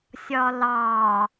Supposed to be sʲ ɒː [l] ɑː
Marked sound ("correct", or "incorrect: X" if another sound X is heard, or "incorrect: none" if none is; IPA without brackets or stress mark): correct